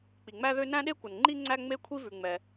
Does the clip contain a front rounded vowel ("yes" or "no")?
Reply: yes